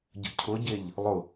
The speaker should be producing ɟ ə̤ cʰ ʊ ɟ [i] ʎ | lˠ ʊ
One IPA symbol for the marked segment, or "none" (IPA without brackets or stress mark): e